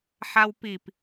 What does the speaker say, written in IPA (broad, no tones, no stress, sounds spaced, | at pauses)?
ħ a w p i p